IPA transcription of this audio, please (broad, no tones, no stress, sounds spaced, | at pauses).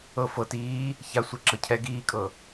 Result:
ɤ f ɤ t iː | ç a sʷ e ǁ ɤ cʰ ɛ ɡ iː kʼ ɤ